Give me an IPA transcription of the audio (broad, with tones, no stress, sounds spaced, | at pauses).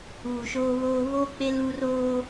uː˨ ʃ oː˦ β oː˦ β oː˦ k͡p e˦ l u˦ r oː˦